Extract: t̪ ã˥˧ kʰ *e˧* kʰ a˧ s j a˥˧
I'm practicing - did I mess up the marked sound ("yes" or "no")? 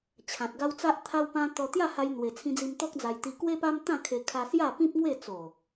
no